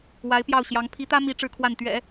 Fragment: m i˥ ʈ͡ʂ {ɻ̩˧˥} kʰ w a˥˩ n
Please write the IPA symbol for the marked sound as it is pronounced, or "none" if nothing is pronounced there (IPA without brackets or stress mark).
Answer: ɻ̩˥˧